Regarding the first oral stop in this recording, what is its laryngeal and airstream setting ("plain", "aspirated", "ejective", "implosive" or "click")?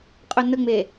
ejective